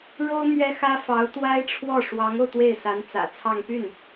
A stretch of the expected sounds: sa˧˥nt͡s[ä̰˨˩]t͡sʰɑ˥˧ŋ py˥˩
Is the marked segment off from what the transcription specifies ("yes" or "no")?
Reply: no